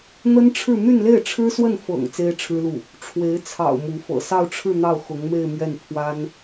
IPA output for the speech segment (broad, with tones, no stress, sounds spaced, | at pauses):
n̪ ə˥ n ʈ͡ʂʰ ɻ̩˥˧ n̪ y˥˧ n l e˥˩ ɪ̯ ʈ͡ʂʰ ɻ̩˥ s w ə˥˩ n f ɤ̰˨˩ ŋ t͡s e˥ ɪ̯ ʈ͡ʂʰ ɻ̩˥ l u˥˩ | ʈ͡ʂʰ w e˧˥ ɪ̯ t͡sʰ ɑ̰˨˩ ʊ̯ m u˧˥ f ɤ̰˨˩ s ɑ˥˧ ʊ̯ ʈ͡ʂʰ ɻ̩˥˧ n̪ ɑ˥˩ ʊ̯ x ʊ˧˥ ŋ m e˥˧ ɪ̯ m ɥ ɛ˥˩ n pʰ w a˥ n